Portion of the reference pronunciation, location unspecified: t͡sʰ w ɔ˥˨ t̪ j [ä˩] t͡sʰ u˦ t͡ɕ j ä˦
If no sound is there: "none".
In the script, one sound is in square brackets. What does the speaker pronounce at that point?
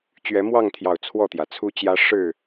ä˩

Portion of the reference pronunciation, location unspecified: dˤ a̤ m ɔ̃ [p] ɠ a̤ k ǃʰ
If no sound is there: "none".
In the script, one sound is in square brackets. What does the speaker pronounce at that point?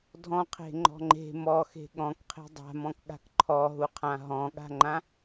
k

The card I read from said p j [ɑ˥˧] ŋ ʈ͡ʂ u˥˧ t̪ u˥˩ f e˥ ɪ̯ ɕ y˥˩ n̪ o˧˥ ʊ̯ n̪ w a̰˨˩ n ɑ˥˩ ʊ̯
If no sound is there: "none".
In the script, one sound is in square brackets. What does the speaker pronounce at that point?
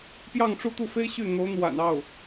ɑ˥˧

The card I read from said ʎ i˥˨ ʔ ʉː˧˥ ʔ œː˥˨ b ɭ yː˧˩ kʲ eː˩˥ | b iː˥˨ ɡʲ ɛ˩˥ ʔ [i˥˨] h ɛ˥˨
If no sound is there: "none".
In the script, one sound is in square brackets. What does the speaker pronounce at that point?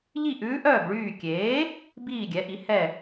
i˩˥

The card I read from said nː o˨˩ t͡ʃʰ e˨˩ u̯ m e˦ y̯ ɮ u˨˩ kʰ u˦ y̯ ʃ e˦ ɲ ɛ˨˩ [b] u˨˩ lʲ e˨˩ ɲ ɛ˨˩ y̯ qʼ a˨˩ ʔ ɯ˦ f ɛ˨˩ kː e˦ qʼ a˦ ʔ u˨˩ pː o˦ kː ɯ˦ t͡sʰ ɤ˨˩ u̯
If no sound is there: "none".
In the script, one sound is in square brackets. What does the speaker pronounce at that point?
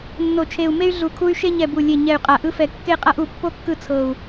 b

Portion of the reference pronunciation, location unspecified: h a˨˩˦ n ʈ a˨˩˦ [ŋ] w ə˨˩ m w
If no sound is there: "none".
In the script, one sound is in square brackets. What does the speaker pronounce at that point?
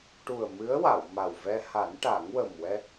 ŋ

